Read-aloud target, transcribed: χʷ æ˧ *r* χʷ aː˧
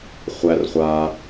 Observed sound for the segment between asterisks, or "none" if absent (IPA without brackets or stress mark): r